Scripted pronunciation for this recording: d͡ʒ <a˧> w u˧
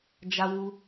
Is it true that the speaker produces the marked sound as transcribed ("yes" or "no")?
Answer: yes